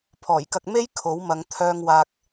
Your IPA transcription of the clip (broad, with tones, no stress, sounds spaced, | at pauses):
pʰ ɔː˨˩ j k ɐ˧ k̚ m e˥ j kʰ o˨˥ w m ɐ˨˧ ŋ t̪ʰ œː˧ ŋ w aː˧ k̚